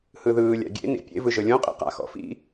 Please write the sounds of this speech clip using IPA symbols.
h ɯ ð ɯː lʲ a̰ ɡʲ ḛ n ḭ pʲ ḛ v ɯ ʒ ɤ lʲ õ qʼ ḭ q a̰ x ɔ̰ f ḭ

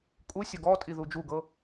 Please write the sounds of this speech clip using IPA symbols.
kʼ u sʲ ɔ ɡ ɔ tʼ i ð u d͡ʒ u ɡ ɤ

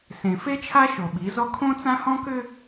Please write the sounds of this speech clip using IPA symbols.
s ẽ˨ f e˦ t͡ʃʰ a˦ ʃ o˨ ɓ i˨˦ z ɔ˦ kʰ õ˦ t͡s ã˦ h ɔ̃˦ k ʏ˦

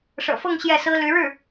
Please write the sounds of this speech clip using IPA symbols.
ʂ ɤ̰˨˩ f ɤ˥˧ ŋ ɕ j ɛ˥˩ s ɹ̩˥ l y˧˥ ɻ ɻ̩˥˩

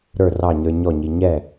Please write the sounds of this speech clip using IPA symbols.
ɾ ə˞˥˩ r ɑ˥˩ ɲ ə˞˧ ɲ ɔ˥˩ ɲ i˧ ɲ ɛ˥˩

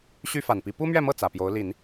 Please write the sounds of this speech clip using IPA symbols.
ɕ y˥ f a˨˩ n p i˧˥ p u˥ m ɥ ɛ˥˧ m ɤ˥˩ t͡s ä˨˩ p j o˧˥ ʊ̯ l i˨˩˦ n

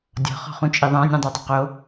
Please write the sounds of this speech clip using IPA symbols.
dʲ ɔ̤ χ ɔ̤ χ ũ t͡ʃʼ i ðˤ ã nʲ ũ dˤ o dˤ ɪ q o

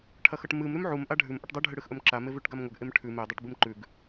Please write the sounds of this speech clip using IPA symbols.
ʈʰ ɐ x ɐ ʈ m ɨ m ɾ ʉ m ʕ u m ʔ a ɖʱ ʉ m ʔ ɐ ʈ dˤ ɨ ɖʱ ɨ ɽ ɨ x ʔ ɵ m ǁ a m e v ʉ ʈ ɡ a m ŋʷ ɐ ɡ ʔ e m ʈʰ ʉ m e dˤ ɨ ʈ b ɨ m ǃ ʉ ɡ

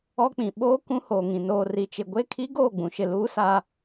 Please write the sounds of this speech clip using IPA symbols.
ɔ˦ k͡p ĩ˨ ɓ oː˦ k ũ˦ h oː˨ ŋ ĩ˨ n oː˨ r i˨ t͡ʃ ɪ˨ ɡʷ e˦˨ kʰ i˦ ɡ oː˦˨ ɡ͡b ũ˨ ʃ ɪ˨ l uː˦ s a˦

